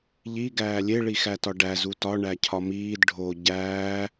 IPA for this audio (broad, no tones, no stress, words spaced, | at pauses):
ʎi ɡæːlʲe ɭixætɒɖæ zutɒ ɳæcʰɒmiːd ɖʱo ɟæː